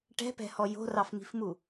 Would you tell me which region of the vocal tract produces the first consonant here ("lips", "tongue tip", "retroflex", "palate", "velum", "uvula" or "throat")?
retroflex